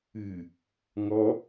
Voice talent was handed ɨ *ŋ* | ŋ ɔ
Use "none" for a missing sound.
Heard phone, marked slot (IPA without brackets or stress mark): none